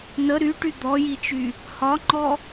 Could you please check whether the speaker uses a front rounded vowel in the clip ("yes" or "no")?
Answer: yes